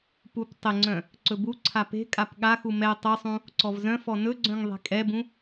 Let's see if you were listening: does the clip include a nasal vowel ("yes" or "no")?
yes